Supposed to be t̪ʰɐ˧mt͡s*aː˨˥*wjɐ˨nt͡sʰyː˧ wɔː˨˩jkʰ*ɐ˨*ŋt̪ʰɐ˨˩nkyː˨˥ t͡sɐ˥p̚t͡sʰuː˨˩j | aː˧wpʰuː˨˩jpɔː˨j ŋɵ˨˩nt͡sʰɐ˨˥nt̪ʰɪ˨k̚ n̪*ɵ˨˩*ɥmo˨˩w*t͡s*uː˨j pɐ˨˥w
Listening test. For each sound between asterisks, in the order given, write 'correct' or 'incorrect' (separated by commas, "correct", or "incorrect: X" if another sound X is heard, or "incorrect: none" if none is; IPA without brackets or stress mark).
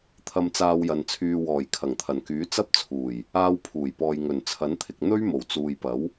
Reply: incorrect: aː˧, incorrect: ɐ˨˩, incorrect: ɵ˥, correct